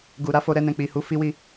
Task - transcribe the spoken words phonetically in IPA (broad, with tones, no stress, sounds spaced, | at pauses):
ɡ u˨ ɾ a˧ f o˧ ɾ ɛ˧ n ɛ̃˨ k͡p i˨ h u˧ f i˧ w i˧